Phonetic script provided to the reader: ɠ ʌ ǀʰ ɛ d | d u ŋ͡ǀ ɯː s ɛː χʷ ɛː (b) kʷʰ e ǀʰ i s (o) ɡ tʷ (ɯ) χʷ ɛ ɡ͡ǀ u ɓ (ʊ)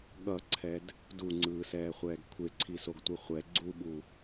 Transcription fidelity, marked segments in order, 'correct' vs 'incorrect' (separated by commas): incorrect, correct, correct, incorrect